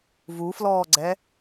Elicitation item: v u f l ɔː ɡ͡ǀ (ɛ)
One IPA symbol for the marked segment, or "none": ɛ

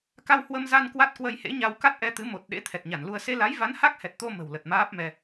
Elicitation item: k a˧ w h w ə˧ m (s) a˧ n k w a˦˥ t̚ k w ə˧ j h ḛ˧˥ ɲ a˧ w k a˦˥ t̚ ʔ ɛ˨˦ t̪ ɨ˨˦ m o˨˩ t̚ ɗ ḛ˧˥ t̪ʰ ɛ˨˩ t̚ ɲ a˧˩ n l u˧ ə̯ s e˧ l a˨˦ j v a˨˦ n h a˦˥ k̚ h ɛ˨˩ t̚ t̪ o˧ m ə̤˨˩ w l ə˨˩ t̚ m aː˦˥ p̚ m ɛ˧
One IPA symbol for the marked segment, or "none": z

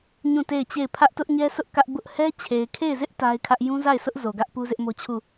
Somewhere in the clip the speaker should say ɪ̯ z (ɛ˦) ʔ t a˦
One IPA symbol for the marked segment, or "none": ɪ˦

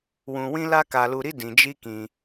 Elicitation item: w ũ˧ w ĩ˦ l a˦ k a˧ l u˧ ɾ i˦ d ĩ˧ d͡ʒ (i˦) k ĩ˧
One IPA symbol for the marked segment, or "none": i˦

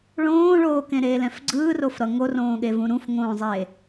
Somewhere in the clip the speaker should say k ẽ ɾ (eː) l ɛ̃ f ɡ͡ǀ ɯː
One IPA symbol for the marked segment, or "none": eː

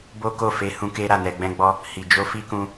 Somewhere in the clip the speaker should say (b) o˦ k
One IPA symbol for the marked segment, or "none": b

